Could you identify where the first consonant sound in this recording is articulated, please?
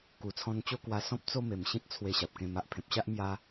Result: velar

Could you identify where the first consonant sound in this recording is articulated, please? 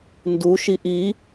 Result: alveolar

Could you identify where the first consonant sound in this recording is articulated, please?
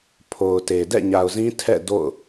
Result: labial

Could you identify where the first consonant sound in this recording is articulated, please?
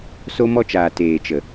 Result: alveolar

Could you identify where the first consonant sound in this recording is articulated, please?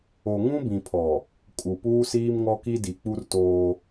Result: velar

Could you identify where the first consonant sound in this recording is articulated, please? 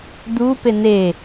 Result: alveolar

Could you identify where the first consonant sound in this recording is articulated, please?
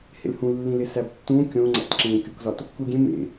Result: glottal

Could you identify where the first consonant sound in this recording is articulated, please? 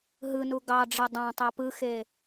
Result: glottal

